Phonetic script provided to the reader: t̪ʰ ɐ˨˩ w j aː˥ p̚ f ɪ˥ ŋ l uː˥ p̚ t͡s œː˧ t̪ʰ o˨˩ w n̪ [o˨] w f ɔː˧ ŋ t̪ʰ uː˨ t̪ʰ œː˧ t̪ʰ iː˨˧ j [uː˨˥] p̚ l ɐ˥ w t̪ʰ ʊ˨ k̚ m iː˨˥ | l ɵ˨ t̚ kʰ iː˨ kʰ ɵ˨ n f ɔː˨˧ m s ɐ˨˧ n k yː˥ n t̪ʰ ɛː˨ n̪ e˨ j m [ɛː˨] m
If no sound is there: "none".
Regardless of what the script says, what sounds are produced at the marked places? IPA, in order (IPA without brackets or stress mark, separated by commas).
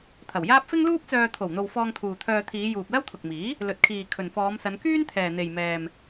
o˨, uː˨, ɛː˨